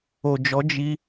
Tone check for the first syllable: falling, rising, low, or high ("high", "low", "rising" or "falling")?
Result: low